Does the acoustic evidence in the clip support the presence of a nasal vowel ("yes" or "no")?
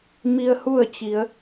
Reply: no